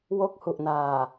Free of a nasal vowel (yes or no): yes